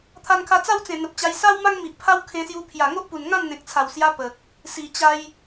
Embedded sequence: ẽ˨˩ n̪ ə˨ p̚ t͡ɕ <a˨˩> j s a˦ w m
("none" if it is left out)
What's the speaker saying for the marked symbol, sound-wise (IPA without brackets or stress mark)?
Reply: a˧